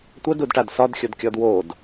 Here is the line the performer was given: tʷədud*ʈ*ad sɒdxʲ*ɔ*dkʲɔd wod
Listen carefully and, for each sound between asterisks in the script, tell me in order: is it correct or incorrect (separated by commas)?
correct, incorrect